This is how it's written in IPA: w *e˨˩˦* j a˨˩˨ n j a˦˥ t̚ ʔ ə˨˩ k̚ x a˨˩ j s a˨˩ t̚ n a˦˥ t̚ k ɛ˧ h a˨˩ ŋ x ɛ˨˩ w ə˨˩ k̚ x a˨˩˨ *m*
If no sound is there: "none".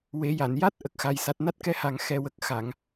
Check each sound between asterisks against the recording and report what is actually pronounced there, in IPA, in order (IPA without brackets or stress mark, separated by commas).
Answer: e˨˩˦, ŋ